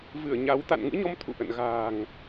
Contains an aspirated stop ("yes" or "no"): yes